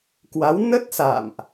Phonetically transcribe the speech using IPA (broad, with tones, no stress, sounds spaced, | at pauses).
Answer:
k w a˨˦ w n ə˦˥ t̚ s a̰˧˨ m ʔ